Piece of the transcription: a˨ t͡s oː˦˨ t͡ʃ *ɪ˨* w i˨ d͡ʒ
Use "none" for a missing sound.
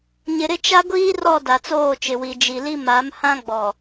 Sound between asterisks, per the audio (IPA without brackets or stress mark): ɪ˨